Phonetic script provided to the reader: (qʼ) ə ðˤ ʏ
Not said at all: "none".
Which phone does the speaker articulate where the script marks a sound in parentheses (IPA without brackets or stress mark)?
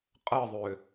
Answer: qʼ